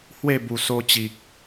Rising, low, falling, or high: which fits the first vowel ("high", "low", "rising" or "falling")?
falling